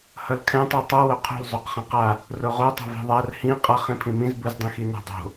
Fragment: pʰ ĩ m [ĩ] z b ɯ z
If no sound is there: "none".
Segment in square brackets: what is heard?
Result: ĩ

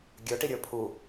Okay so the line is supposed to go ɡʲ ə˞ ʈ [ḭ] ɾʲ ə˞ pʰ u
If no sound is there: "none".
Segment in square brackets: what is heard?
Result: i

